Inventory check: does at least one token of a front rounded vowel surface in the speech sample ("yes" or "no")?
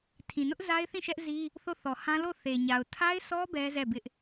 no